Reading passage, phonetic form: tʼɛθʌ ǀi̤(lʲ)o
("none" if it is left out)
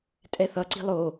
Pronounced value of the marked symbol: lˠ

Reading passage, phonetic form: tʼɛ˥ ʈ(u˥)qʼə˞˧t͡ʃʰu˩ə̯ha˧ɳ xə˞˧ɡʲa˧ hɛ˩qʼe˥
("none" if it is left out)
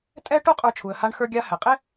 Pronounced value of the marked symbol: u˥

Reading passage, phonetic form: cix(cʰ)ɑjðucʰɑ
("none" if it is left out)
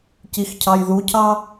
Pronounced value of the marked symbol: cʰ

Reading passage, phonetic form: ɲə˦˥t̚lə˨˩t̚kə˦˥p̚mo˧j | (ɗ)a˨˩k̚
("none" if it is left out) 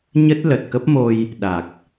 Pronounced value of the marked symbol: ɗ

